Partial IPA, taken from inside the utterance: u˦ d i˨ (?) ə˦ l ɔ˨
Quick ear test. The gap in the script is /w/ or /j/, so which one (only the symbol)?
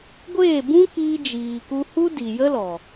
j